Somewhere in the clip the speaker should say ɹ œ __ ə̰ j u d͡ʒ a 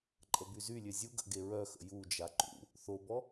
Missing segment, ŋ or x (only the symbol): x